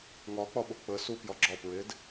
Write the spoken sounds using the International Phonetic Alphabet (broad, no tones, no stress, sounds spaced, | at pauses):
ŋ ɒ k͡p ɒ ɓ o k͡p ə s u p j ɒ ɡ͡ǁ ɒ p ɹ e d